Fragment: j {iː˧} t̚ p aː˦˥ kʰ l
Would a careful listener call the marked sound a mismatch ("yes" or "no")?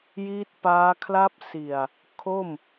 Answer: yes